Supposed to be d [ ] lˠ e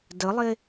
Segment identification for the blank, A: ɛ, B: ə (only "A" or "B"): B